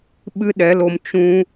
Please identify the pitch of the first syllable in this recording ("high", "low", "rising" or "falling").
high